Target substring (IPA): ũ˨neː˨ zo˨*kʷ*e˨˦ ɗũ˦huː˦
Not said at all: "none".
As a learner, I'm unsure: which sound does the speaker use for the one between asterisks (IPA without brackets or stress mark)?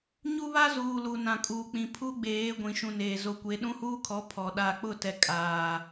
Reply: kʷ